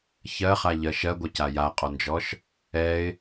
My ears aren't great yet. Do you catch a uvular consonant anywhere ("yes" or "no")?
yes